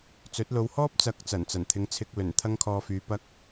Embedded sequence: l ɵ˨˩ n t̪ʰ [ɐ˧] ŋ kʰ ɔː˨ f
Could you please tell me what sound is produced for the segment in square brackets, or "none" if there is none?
ɐ˧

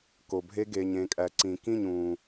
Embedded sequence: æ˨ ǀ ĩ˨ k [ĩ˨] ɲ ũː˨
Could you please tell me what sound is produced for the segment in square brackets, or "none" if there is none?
ĩ˦˨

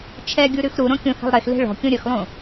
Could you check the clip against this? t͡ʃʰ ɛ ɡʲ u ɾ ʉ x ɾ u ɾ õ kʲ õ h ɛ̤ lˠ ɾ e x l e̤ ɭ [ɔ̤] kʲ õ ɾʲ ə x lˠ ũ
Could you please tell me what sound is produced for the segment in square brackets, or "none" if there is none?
ɔ̤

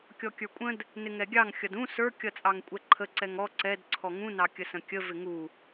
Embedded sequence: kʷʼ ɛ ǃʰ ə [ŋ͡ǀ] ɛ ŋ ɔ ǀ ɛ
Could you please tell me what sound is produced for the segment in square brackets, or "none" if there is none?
ǀ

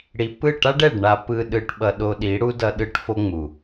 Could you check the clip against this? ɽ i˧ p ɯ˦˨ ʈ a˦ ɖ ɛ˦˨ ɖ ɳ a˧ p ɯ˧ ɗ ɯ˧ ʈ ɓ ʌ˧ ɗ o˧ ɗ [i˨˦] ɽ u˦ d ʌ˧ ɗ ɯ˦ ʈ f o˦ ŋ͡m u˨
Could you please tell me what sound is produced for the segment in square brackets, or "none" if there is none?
i˨˦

